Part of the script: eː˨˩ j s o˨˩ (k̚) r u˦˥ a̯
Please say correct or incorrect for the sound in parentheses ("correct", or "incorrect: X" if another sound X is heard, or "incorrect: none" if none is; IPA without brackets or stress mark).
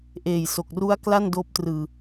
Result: correct